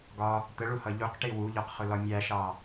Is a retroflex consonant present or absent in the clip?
present